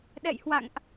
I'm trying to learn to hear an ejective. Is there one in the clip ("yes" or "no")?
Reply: no